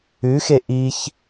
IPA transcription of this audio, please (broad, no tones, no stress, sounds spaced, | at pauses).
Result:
ʉ x e ʔ i ç